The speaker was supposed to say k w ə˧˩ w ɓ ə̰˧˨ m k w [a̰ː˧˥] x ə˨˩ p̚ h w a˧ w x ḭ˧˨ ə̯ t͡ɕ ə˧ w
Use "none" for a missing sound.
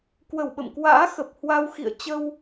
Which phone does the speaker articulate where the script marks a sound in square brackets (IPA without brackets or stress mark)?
a̰ː˧˥